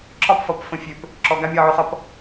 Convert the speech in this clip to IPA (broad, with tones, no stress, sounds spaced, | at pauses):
ǁ ɒ˦ p f ʌ˨ p f ə̃˨ fʲ ø˨ p | ǁ ɔ˨ ɡ a˦ mʲ ɒ˦˨ ʕ ø˦ χ ʌ˦ p